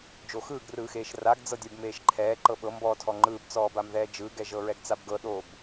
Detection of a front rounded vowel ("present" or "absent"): absent